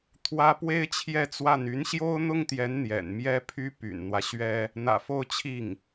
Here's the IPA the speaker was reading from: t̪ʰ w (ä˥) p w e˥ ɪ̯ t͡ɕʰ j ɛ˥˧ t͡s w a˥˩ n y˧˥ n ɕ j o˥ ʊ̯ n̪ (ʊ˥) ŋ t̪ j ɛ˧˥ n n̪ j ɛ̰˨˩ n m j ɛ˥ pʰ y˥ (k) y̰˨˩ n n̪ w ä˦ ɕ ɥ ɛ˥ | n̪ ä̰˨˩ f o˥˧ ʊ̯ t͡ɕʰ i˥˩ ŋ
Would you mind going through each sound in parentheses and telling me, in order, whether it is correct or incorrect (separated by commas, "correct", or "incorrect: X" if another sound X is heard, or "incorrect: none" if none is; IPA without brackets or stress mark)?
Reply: correct, correct, incorrect: p